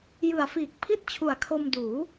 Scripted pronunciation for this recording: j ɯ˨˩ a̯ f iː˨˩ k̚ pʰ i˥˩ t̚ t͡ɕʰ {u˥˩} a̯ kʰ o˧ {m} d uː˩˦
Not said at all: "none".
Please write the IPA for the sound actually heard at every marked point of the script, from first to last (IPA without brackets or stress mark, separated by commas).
u˨˩, m